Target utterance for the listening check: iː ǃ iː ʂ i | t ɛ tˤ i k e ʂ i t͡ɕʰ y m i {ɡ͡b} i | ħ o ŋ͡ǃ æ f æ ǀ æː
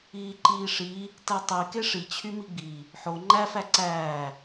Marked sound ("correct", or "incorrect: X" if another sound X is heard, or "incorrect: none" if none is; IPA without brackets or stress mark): correct